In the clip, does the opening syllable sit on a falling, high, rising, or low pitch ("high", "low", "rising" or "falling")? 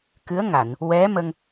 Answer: rising